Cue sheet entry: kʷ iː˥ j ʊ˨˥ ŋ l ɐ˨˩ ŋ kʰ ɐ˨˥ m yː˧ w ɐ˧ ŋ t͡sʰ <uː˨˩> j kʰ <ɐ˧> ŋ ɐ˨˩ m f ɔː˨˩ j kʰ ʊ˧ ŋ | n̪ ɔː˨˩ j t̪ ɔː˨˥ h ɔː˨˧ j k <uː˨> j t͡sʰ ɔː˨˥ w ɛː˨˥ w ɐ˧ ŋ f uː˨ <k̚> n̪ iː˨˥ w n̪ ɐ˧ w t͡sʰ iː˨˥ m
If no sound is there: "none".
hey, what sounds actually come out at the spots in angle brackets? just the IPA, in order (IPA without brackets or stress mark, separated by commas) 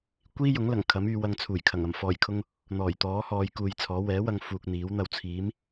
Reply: uː˨˩, ɐ˨˩, uː˨, k̚